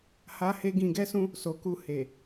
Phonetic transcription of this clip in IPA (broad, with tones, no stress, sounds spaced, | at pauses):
h a˦ h e˦ ɡ ĩ˧ ɡ ɛ˦ s ũ˦ | s o˨ k u˧ h e˨